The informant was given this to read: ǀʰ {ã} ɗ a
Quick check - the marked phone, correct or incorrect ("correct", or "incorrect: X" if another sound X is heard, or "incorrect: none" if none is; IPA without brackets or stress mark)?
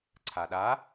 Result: incorrect: a